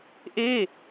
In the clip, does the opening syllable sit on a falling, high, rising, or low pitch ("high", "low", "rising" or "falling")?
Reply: falling